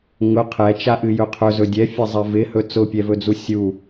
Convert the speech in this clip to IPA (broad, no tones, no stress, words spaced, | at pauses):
ŋʊ qʰɛt͡ʃaʔɨjɵ qʰɵzɵ dʲɛfʲɛzˤɛ vɪhɵ t͡sʊpʲɛvɵd͡zu sʲu